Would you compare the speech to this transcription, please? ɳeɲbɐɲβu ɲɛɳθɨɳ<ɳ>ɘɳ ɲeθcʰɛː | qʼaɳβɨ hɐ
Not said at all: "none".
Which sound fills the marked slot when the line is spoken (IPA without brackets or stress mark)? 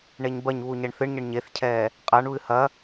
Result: ɲ